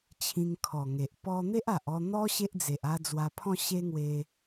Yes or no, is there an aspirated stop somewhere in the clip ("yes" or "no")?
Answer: yes